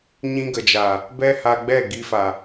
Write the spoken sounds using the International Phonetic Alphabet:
ɲ ĩ˧ ɡ ə˨ d͡ʒ aː˨ | b ɛ˦ h a˧ ɡ͡b ɛ˦˨ ɡ i˧ f a˨

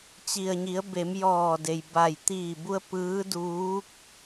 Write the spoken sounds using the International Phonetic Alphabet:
t͡ɕ i˩ ə̯ ɲ i˩˧ ə̯ b e˩˧ m j ɔː˧˩ d e˩ j b a˧˩ j t̪ iː˧˩ b u˧ ə̯ p ɯː˧˥ d uː˧˥ k̚

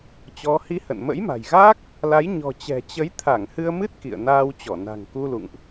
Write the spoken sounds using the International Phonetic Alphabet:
t͡ɕ ɔ˨˦ h i˧ h ə̰˧˨ n m ə̰˧˥ j m a̤˨˩ j ɣ aː˦˥ k̚ | l a˨˦ j ɲ ɔ̤˨˩ t͡ɕ ɛ̤˨˩ t͡ɕ ə˨˦ j t̪ʰ a˧˩ ŋ h ɨ˧ ə̯ m ɨ˦˥ t̚ k ḭ˧˨ ə̯ n aː˧ w t͡ɕ ɔ˧˩ n a̤˨˩ ŋ k u˧ l ṵ˧˨ ŋ ʔ

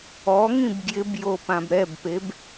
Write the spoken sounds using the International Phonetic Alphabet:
ɔ ŋ ĩ b ɡ j ɪ b j o p ã b ɾ ɛ b p e b

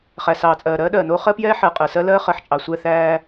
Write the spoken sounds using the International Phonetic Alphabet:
χ æ˨ s ɑː˨ t͡sʼ ɜː˨ ɾ ɜː˦ ɗ ɜː˨ n oː˦ χ ɜ˦ p j ɛː˦ ħ ɜ˨ qʼ ɜ˨ s ɜ˦ l ɜː˦ χ ɜ˨ ħ t͡ʃʼ ɑ˨ sʷ ɛ˦˨ θ æː˦

